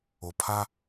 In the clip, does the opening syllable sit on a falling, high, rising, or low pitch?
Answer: low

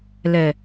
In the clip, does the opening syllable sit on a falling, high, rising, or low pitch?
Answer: low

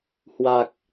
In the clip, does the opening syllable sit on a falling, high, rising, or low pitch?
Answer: low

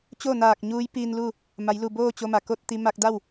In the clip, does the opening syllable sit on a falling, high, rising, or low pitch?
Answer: falling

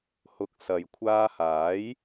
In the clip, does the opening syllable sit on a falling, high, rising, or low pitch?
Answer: low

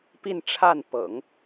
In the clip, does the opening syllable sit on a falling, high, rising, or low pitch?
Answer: falling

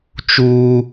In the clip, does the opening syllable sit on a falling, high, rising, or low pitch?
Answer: high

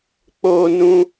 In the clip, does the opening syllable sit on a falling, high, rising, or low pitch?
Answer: high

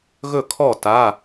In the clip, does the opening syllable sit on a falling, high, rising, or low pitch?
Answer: falling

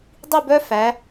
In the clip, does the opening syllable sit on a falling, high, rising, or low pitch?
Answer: falling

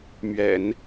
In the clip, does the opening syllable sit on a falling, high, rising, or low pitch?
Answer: low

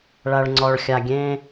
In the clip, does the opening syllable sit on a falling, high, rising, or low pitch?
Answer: low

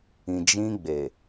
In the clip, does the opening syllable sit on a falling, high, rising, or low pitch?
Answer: low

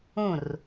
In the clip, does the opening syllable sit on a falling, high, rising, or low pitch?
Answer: falling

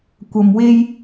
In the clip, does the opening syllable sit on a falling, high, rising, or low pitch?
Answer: low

